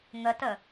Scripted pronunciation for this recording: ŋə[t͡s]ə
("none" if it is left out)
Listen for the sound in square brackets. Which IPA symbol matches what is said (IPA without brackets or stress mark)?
t